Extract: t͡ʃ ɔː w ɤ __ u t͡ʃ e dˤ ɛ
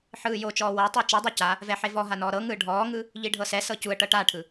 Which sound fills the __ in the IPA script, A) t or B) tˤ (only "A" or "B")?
B